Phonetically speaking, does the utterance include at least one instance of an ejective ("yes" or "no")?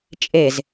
yes